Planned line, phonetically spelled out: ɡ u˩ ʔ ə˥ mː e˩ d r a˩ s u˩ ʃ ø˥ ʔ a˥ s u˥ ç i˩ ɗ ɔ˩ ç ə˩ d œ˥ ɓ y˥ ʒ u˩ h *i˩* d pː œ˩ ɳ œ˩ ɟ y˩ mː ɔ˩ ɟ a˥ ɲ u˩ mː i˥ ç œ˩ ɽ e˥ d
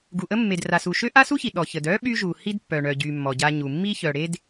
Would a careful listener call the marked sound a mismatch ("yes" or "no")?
yes